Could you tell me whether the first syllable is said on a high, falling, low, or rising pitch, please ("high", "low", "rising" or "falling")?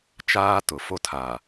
high